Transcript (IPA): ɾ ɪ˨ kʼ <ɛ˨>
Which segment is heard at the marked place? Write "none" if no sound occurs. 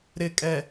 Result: ɛ˨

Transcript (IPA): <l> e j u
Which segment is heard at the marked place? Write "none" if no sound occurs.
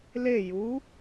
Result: l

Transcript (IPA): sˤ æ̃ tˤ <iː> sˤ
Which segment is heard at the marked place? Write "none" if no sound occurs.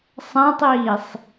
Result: iː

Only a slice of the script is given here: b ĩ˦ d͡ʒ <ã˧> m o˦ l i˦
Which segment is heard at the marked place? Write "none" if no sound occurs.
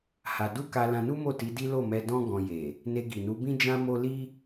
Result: ã˦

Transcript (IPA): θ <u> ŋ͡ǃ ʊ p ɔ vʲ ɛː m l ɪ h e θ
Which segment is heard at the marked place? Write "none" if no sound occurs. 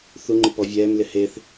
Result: u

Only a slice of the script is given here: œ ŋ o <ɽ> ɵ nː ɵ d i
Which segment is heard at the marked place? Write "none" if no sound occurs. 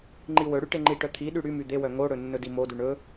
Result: ɽ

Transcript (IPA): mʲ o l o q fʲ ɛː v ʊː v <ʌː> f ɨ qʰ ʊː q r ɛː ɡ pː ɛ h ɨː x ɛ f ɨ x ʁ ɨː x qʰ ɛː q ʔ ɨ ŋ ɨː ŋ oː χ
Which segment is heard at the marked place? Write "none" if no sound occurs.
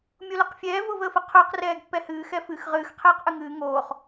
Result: əː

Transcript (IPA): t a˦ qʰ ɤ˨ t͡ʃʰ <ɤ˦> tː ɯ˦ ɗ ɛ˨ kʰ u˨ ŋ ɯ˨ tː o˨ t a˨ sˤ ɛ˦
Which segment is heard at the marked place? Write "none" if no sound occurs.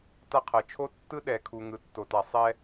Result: o˦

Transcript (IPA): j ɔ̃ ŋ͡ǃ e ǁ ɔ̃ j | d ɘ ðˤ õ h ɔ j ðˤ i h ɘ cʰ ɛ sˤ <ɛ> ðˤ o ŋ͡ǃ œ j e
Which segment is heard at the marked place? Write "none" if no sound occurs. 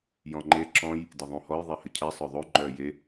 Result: œ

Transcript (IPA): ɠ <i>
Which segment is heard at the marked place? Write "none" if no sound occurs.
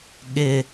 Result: ɪ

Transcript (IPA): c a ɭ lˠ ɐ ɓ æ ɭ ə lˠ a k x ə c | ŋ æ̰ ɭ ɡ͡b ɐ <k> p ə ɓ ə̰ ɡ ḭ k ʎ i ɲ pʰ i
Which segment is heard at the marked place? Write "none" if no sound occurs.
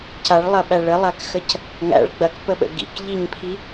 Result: k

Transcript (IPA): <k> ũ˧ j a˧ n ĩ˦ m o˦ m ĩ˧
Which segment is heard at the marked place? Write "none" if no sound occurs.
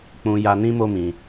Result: k͡p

